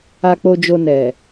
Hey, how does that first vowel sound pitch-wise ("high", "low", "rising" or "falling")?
low